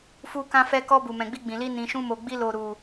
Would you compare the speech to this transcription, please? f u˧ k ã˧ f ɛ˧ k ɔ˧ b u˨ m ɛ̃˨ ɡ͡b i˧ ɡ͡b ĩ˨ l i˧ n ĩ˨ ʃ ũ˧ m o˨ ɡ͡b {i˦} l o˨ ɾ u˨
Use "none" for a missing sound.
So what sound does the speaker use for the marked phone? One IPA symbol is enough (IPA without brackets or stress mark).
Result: i˧